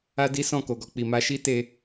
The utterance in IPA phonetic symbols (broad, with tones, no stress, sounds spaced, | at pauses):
a˦ d i˦ s ɔ̃˦˨ k o˨ ɡ ɔ˧ k͡p i˨ m a˧ ʃ i˦ t e˧